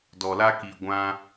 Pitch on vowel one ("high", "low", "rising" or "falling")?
low